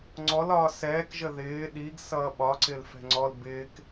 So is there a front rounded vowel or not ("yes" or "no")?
no